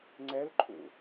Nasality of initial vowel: oral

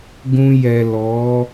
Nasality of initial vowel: nasal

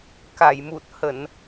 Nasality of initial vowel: oral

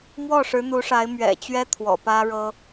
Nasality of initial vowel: oral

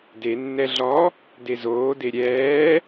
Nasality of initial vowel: oral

